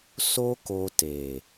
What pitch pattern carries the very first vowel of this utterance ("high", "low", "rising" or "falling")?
high